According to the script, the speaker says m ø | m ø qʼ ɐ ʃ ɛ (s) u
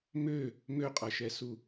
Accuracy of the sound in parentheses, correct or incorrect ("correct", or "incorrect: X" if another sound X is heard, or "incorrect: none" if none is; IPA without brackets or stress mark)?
correct